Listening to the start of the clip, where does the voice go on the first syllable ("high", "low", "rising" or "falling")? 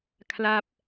falling